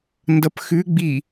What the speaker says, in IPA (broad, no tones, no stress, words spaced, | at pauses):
ndʌpxʉ ɡ͡bi